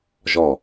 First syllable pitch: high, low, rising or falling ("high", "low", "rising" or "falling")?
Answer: falling